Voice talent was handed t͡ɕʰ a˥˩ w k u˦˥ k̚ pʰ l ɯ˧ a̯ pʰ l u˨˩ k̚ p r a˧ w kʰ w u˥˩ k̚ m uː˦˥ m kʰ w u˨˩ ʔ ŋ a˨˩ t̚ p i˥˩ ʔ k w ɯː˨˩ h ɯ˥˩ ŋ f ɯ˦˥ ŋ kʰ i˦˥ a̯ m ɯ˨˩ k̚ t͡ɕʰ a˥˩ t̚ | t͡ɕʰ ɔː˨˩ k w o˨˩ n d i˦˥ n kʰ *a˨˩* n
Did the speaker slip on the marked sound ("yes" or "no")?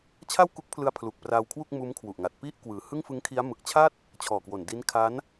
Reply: yes